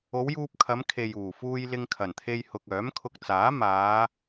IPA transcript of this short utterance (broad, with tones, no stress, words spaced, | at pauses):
o˨˧wjuː˧p̚kʰɐ˨˧m kʰe˨juː˨˩fuː˧j lɪ˧ŋkʰɐ˨˩nt̪ʰe˧j hʊ˨k̚œː˨˥mkʰʊ˧k̚t͡saː˨˥ maː˨˧